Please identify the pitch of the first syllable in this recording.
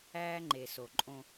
high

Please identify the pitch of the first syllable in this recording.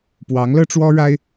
rising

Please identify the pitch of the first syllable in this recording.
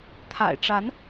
low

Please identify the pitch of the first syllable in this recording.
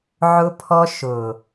high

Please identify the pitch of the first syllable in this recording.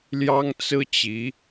high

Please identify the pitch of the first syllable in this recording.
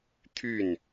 falling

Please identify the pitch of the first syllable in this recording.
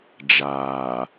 low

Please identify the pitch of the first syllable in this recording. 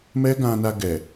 high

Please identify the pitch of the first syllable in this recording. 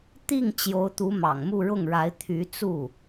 falling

